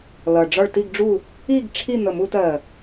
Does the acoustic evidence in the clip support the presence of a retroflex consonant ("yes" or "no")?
yes